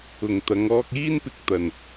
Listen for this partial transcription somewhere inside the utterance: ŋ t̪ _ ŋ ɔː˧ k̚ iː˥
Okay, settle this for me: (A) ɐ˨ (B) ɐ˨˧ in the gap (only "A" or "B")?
B